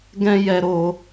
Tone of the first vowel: high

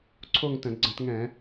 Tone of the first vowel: falling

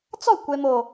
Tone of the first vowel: falling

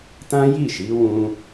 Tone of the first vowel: high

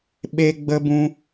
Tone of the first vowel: high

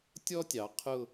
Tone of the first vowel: high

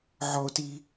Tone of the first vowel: high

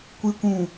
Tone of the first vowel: low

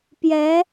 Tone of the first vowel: rising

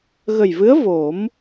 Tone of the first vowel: low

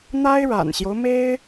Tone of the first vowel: high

